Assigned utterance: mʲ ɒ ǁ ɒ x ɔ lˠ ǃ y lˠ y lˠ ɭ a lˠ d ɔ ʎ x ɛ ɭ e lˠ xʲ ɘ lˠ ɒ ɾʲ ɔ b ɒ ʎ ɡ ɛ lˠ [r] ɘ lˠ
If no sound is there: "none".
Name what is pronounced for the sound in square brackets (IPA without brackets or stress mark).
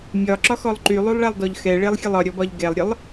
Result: ɾʲ